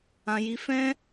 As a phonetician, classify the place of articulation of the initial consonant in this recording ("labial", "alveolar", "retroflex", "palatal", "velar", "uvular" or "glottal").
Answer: palatal